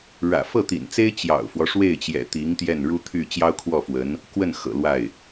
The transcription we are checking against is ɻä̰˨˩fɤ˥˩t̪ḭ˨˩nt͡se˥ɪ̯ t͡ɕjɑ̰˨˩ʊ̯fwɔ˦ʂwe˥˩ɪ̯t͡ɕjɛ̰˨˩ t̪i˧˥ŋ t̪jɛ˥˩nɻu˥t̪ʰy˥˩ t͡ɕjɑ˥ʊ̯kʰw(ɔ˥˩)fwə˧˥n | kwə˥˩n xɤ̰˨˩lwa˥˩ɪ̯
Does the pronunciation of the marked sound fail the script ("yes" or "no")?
no